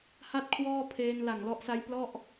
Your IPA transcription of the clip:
h a˥˩ t̚ kʰ w ɔː˥˩ pʰ eː˧ n l a˨˩ ŋ l ɔ˦˥ ʔ s a˦˥ j p l ɔ˥˩ ʔ

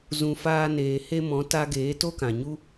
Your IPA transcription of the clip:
z ũ˨ f aː˧ n eː˨ h e˧ m ɔ̃˨˦ t a˧ ɡ eː˨˦ t o˦ k ã˨ ɲ u˦

